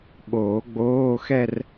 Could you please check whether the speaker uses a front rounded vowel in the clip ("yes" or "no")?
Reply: no